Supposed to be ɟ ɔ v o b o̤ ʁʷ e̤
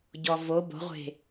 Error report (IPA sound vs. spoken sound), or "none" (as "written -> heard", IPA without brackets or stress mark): none